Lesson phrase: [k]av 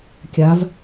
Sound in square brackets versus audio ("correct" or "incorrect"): incorrect